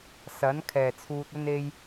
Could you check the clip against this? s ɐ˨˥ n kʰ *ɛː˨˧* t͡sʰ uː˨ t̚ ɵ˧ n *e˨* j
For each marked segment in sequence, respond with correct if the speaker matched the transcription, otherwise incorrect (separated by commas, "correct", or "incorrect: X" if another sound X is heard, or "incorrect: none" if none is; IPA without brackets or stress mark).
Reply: incorrect: ɛː˨˩, incorrect: e˧